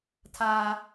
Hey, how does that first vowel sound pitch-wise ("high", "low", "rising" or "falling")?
high